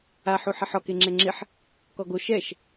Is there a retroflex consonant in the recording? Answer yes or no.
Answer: no